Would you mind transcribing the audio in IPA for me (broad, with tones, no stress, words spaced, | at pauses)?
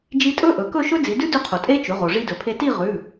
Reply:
d͡ʒi˧tʼɵ˦˥ ʔɵ˩˧kɵ˥˧ ʃɵ˦˥d͡zi˩˧dʉ˦˥dʉ˧ qʰo˩tʼe˦˥t͡ʃʉ˩˧ʁo˩ ʐi˧dɵ˩pʰe˧ ti˥˧ʁʉ˩˧˩